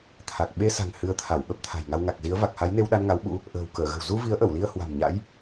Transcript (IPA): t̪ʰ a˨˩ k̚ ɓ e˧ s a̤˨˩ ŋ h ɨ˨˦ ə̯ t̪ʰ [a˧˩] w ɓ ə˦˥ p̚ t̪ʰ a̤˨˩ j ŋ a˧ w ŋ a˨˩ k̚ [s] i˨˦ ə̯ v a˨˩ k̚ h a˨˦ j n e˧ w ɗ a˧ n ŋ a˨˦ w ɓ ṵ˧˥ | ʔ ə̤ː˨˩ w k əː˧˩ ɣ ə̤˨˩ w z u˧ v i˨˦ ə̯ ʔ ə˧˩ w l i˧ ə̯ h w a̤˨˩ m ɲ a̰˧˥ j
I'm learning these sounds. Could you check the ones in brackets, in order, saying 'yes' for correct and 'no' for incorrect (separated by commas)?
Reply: yes, no